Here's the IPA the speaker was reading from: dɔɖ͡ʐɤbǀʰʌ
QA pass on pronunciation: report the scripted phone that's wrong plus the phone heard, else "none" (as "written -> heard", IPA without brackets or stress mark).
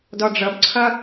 none